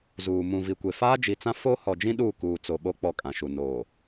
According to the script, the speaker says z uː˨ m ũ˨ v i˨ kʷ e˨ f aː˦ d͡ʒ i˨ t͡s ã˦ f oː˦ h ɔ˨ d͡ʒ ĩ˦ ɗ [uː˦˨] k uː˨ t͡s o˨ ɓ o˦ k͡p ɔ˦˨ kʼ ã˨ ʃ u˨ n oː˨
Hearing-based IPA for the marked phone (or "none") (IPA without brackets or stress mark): uː˦˨